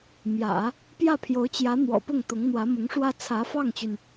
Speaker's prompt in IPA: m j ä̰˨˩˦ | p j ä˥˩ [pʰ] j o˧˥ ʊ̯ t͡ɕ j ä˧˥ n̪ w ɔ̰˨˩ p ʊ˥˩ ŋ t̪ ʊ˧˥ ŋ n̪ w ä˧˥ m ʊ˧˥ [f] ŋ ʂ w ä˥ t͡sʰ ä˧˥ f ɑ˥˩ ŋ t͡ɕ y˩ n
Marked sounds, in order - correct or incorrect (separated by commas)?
correct, incorrect